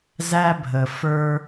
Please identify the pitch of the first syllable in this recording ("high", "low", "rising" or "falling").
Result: high